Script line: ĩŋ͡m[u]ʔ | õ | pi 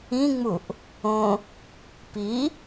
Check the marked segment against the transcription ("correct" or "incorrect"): correct